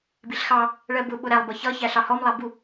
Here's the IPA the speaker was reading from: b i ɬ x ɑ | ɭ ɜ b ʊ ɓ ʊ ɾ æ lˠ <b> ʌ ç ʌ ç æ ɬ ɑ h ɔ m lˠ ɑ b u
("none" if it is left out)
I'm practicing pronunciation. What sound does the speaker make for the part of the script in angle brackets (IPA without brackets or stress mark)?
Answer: b